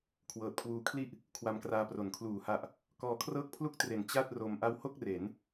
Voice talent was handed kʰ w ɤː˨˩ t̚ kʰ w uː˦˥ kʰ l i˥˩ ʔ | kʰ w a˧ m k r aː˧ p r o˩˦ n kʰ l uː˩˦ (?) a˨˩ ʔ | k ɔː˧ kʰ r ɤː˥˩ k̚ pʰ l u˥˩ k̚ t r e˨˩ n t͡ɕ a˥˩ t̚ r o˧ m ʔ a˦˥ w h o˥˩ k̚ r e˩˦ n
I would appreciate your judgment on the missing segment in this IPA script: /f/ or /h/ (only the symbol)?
h